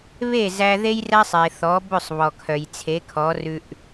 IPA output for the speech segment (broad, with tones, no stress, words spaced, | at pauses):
βe˥˩zæ˧ ðe˥jræ˥sˤe˩θɔ˩˥ bɵ˥˩sˤ βɔ˩kʰœ˩j t͡sʰe˩˥kʰɔ˩˥rʉ˧ʔ